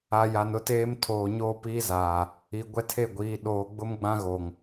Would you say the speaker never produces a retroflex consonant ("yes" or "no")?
yes